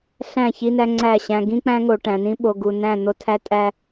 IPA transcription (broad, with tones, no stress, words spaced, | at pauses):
ɬæ̃˦˨çi˦næ˦ ŋ͡ǀæ˦˨ɕæ̃˦ ɡĩ˦k͡pæ̃˦ŋo˨ ʈæ̃˨nĩ˦ ɓo˨ɡu˨næ̃˦˨ n̪o˦tʰæ˦ tʼæ˦